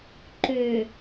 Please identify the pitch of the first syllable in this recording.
low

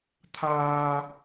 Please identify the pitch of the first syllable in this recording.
high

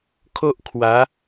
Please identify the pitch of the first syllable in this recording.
high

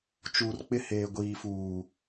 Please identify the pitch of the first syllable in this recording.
low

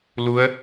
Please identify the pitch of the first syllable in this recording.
rising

